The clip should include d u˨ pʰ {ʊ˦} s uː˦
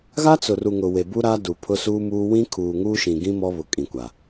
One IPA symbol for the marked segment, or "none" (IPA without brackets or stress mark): ʊ˦